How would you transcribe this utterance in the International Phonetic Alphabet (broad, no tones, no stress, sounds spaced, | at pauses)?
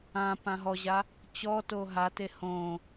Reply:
ã p ã ɦ ɔ ʑ a | t͡ɕ ɔ t o ɦ a t e h õ